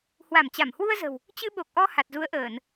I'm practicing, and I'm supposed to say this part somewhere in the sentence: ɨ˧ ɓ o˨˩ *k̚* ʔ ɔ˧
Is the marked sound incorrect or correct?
correct